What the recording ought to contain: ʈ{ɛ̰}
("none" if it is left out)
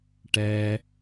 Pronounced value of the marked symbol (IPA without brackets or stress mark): ɛ